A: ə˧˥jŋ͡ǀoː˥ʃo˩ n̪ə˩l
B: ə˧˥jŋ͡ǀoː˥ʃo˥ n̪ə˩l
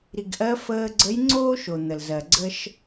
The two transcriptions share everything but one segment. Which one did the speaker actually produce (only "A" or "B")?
A